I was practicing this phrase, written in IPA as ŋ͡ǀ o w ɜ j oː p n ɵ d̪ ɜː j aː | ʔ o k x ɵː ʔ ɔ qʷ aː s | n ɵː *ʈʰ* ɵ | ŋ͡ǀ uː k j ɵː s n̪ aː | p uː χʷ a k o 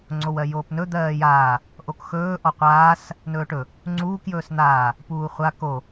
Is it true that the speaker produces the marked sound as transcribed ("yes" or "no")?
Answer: no